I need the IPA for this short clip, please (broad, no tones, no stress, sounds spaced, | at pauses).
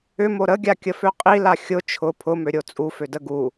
ʏ m o ɾ ə ɡʲ a kʲ ə f ø qʼ i l a xʲ ʊ t͡ʃʰ ʊ pʰ ʊ m ø ɾʲ o t͡sʼ u f ø d ə ɡ u